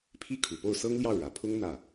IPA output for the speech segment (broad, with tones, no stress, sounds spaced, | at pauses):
pʰ i˥ kʰ u˨˩ p o˥˩ ʊ̯ s ɤ˥ ŋ l j ɑ˥˩ ʊ̯ ɻ ä˨˩ pʰ ʊ˥ ŋ n̪ ä˥˩